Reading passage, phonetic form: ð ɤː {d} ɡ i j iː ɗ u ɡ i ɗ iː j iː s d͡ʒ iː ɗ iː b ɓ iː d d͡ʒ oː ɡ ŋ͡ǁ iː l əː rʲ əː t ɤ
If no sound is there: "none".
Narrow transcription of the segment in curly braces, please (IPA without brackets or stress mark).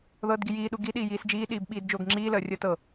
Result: d